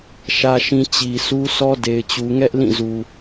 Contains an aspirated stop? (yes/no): no